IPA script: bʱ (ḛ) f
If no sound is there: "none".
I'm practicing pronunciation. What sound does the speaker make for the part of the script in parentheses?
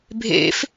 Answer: ḛ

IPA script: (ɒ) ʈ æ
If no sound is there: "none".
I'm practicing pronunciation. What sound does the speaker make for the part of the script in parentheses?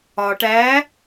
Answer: ɒ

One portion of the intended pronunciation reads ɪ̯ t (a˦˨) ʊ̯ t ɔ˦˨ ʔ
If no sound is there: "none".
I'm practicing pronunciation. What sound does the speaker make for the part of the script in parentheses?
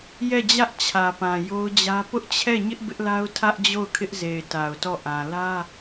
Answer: a˨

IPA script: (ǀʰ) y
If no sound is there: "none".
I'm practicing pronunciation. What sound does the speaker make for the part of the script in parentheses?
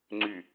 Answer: ŋ͡ǀ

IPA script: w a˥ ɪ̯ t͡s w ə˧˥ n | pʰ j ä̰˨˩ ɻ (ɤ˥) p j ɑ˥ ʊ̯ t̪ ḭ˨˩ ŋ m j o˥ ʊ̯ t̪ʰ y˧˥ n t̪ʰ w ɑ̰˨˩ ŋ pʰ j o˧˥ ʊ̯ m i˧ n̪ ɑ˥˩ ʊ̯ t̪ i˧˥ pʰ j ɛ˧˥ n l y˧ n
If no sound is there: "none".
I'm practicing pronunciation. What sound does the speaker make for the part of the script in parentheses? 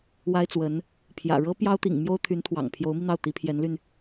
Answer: ɤ˥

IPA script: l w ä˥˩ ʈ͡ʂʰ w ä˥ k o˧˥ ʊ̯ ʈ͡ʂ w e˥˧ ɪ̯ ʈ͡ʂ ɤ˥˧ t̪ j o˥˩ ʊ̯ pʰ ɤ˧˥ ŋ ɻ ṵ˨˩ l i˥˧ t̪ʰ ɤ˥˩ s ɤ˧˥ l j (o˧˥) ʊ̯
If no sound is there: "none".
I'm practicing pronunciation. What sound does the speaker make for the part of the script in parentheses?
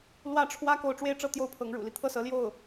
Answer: o˥˩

